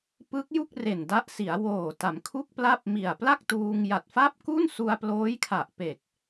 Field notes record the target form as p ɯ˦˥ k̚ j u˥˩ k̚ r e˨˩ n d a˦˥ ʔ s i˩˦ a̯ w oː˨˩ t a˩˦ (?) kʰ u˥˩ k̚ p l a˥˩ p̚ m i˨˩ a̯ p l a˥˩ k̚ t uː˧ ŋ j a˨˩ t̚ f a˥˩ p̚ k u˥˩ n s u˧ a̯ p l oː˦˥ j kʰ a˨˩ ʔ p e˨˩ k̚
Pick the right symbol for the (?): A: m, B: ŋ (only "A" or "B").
A